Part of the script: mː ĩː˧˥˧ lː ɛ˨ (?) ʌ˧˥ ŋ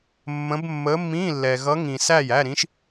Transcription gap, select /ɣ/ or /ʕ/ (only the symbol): ɣ